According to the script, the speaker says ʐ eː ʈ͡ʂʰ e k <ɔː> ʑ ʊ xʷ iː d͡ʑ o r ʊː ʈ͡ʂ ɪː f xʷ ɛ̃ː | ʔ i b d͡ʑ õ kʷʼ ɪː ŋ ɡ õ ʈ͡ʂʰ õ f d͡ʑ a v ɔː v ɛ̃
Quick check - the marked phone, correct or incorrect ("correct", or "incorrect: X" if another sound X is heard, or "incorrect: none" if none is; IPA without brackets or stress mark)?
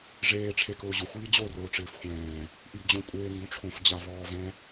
incorrect: ʊː